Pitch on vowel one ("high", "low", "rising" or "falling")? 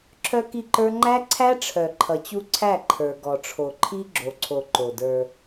high